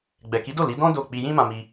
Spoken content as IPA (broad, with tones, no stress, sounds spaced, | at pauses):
ɡ͡b ɛ˨ k i˨˦ d o˦˨ l i˨˦ d ɔ̃˦ d o˦˨ k͡p i˧ j ĩ˦ m ã˧ m i˧